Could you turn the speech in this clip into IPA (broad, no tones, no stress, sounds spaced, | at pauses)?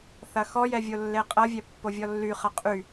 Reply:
θ ɐ x ɔ j ɛ vʲ o lː e qʼ ɐ vʲ ɛ pː o vʲ ɔ lː y χ ɐ qʼ y